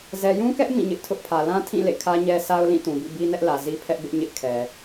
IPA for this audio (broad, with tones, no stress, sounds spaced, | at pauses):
z ɛ˨ j ũ˦ k ɛ˦ ʔ m ĩ˦˨ ɲ ɪ˦ ʔ tʰ ʊ˦ ʔ pʰ ä˨ l ã˦ tʰ ĩ˦˨ l ḛ˦˨ kʰ ä˦ ɲ ɛ˦ s a˦ ʊ̯ l ĩ˦˨ t ũ˨ b ḭ˦˨ b i˦ n ɛ˦ ʔ l ä˨ z i˦ pʰ ɛ˦ ʔ b ɪ˦ ʔ ɲ ɪ˦ ʔ kʰ ɛ˨